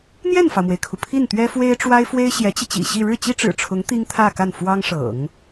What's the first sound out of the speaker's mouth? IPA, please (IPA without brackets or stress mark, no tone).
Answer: n̪